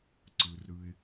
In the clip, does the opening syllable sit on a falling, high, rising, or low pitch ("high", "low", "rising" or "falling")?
low